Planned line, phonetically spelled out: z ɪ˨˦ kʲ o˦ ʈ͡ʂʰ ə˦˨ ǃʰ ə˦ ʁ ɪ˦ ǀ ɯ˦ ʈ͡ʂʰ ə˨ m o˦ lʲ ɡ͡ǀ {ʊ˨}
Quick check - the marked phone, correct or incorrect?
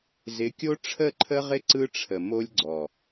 incorrect